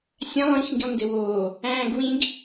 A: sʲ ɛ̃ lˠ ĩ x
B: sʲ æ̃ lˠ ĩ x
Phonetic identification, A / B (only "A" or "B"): B